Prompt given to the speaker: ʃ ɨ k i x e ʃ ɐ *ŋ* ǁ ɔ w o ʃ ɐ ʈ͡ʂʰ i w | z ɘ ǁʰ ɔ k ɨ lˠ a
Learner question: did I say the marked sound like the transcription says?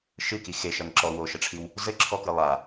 yes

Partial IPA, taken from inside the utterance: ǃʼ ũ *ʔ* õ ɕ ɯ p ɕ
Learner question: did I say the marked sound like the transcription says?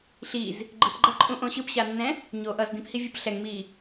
yes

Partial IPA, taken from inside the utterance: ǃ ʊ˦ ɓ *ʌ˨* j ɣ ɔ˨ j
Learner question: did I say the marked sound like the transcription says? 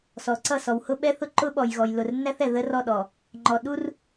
no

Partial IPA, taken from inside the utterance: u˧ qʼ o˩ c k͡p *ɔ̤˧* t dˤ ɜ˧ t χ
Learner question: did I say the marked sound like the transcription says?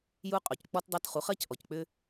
no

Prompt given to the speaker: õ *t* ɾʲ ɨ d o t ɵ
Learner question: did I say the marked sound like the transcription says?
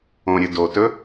no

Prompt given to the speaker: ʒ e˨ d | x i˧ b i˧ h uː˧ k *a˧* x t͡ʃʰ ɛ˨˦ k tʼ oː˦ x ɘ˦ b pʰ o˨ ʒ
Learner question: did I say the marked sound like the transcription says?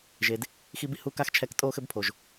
yes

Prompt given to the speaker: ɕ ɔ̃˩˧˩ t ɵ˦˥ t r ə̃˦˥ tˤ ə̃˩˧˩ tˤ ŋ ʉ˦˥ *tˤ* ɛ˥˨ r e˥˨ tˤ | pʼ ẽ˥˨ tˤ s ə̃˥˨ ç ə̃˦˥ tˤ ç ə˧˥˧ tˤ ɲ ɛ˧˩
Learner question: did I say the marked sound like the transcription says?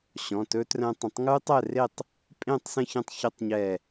yes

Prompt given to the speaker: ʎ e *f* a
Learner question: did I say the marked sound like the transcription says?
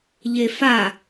yes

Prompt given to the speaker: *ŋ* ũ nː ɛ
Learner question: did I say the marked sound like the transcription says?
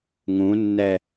yes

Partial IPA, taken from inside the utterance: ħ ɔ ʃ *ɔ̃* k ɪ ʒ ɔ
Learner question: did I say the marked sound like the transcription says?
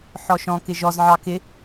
yes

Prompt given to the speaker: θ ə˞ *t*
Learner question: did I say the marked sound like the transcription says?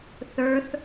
no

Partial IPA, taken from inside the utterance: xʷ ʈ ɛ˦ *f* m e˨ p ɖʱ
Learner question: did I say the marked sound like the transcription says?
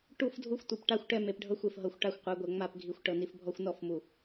no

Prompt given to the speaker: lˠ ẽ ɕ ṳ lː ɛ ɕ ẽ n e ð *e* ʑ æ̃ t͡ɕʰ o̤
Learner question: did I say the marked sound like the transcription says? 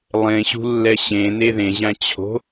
no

